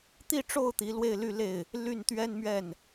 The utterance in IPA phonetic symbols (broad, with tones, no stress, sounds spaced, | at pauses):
t̪ i˥˧ ʈ͡ʂ o˥˩ ʊ̯ t̪ i˧˥ l w e˥˧ ɪ̯ l y˥˧ l e˥˩ ɪ̯ | l y˥˩ n t̪ ɥ ɛ˥ n m ɥ ɛ˥˩ n